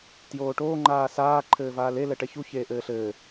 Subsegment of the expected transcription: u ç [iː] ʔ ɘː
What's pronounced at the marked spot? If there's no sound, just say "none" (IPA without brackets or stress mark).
eː